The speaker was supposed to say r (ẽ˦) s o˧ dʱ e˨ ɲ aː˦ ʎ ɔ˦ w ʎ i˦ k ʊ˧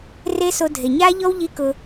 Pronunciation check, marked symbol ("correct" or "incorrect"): incorrect